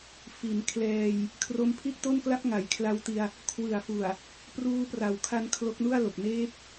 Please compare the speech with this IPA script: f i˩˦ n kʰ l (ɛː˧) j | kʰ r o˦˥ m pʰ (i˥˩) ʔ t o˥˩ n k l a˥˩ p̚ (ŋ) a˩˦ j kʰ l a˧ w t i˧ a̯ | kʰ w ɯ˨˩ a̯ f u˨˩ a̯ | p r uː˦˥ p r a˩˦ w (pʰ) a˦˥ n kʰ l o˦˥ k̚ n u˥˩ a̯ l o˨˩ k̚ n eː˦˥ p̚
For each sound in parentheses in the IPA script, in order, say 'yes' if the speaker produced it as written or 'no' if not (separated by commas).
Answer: yes, yes, yes, no